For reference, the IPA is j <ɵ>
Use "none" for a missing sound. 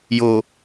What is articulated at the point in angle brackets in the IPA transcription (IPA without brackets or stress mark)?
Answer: o